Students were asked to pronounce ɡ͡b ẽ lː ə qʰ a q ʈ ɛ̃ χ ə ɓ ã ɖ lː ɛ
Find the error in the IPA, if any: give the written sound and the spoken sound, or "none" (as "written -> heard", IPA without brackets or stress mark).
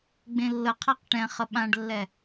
none